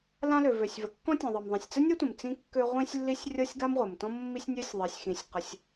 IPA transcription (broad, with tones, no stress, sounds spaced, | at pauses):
l ã˥ l ø˩ v ø˩ sʲ v ə˩ kː ɔ̃˥ tʲ ɔ̃˩ ðˤ ɤ˩ m ðˤ ĩ˩ sʲ t͡s ə˥ nʲ ɤ˥ tʷ ə̃˩ m t͡s ĩ˥ kː ø˥ ʁʷ ĩ˥ sʲ lː i˥ sʲ rʲ ɤ˥ sʲ ɡ a˥ m ʁʷ ə˩ m t ɔ̃˥ mː i˥ sʲ nʲ ø˥ sʲ ðˤ i˩ sʲ x ĩ˩ sʲ q ə˩ sʲ